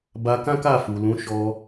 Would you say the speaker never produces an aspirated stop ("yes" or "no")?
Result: yes